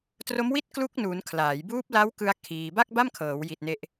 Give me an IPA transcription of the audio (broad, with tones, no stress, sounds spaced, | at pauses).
t r o˦˥ m w i˥˩ t̚ k l u˦˥ k̚ n uː˩˦ n kʰ l aː˩˦ j b uː˦˥ p̚ l a˦˥ w k ɯ˧ a̯ kʰ iː˧ b a˥˩ k̚ b a˥˩ m kʰ ɤː˩˦ w j i˨˩ t̚ n e˦˥ ʔ